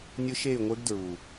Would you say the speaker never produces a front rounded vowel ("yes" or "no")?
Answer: no